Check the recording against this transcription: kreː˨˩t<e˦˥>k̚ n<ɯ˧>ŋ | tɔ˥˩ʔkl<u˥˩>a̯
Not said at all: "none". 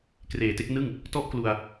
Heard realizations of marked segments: e˥˩, ɯ˥˩, u˧

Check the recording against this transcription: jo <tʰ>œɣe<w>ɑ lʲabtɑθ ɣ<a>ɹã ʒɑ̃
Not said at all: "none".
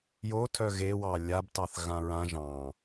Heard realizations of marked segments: tʰ, w, ã

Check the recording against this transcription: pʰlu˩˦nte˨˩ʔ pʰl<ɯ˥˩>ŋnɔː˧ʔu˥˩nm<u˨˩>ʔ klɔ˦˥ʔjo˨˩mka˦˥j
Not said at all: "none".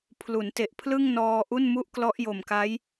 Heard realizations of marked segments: ɯ˥˩, u˥˩

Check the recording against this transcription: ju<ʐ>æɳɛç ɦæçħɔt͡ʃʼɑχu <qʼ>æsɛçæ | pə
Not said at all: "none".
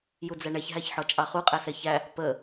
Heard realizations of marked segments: d͡z, qʼ

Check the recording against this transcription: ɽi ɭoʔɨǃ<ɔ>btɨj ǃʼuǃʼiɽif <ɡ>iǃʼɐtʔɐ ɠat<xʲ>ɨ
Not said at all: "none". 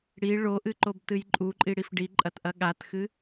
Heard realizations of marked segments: o, ɖ, x

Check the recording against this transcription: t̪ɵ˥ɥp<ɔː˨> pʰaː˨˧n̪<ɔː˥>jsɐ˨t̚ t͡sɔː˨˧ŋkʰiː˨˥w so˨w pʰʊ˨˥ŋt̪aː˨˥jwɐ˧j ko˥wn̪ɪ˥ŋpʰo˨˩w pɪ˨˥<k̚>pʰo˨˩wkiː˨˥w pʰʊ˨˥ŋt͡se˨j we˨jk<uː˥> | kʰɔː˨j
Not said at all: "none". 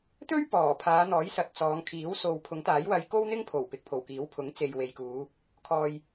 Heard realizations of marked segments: ɔː˨˩, ɔː˨˥, k̚, uː˨˧

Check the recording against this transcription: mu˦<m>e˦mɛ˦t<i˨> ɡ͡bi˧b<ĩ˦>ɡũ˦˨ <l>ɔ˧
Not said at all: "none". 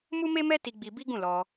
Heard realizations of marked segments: m, i˧, i˦, l

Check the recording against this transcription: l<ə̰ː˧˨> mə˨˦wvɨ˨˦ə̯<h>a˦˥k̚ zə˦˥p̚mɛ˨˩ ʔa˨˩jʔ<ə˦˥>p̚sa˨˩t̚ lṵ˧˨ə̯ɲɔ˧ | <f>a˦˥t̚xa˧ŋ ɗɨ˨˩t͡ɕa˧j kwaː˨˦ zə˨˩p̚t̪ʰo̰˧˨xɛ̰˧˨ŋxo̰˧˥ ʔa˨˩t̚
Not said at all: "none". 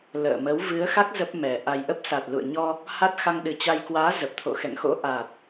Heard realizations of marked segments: ə̰ː˧˨, x, ə˦˥, h

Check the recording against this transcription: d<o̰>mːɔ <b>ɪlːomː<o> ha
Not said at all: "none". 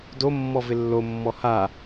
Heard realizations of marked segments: o, v, ɔ

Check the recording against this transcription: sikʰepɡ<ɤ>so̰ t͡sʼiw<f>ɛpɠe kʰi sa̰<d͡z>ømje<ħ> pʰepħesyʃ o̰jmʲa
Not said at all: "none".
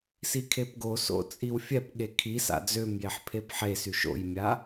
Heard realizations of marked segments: o, fʲ, d͡z, ħ

